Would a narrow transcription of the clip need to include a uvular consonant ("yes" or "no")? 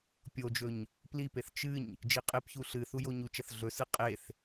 yes